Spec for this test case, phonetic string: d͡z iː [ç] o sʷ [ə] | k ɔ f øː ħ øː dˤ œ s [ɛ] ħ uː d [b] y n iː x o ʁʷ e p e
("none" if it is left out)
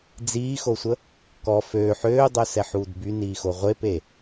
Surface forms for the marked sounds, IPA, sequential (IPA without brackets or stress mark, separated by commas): x, ə, ɛ, b